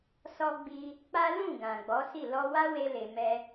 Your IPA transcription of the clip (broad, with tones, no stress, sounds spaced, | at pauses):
s ɔ˧ ɡ͡b i˧ | k͡p a˦ l ũ˦˨ ɡ ã˨ ɡ͡b ɔ˨˦ s i˦˨ l ɔ˧ w a˦ w e˧ l e˧ m ɛ˦